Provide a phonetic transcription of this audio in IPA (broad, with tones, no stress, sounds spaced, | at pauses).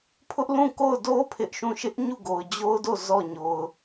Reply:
pʰ ʊ˦ ʔ l ũ˦˨ k o˦˨ ʊ̯ d o˦ pʰ ɪ˦ ʔ ʃ ũ˦˨ ʃ ɪ˦ ʔ ɲ u˦˨ ɡ o˨ ʊ̯ d͡ʑ o˦ ʊ̯ d o˦˨ z ɔ˦˨ ɲ o˨ ʊ̯